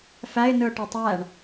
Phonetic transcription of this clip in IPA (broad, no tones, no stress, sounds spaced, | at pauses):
f æ ɪ̯ n ɯ ʊ̯ ʈ ø tˤ æ ɳ